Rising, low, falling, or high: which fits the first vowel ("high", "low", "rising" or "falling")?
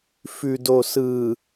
low